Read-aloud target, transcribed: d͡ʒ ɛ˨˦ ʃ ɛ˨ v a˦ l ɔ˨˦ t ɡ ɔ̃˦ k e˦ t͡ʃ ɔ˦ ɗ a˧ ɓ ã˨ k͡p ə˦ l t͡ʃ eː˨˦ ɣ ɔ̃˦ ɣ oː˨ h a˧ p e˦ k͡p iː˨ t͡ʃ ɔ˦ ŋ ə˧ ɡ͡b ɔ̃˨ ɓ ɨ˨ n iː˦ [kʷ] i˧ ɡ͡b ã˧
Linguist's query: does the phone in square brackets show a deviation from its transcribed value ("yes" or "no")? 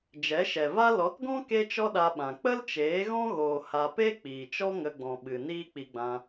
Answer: yes